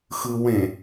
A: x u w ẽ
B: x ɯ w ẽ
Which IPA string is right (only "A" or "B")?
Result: B